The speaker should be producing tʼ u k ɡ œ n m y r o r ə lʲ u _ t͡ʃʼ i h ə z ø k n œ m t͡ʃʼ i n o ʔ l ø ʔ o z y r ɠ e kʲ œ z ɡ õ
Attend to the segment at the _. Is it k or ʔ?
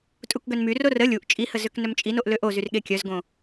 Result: ʔ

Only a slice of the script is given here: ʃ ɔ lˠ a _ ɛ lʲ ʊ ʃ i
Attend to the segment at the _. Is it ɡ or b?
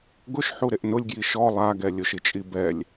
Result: ɡ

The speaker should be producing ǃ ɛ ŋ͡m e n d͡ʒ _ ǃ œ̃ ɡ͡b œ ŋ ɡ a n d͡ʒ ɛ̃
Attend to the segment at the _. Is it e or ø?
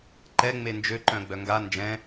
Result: ø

